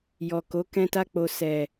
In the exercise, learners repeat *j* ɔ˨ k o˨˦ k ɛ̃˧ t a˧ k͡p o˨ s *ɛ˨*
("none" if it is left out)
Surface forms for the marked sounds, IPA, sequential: j, ɛ˨

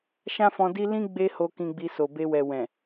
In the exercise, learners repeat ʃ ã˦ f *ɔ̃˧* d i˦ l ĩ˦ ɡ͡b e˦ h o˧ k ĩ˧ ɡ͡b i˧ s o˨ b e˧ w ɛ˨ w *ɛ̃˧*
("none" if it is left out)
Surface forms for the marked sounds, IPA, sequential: ɔ̃˧, ɛ̃˨

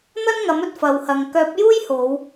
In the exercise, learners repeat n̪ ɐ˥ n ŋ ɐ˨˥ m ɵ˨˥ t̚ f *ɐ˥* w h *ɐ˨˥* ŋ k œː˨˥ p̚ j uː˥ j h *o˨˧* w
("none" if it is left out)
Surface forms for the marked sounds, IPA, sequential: ɐ˨, ɐ˨, o˨˧

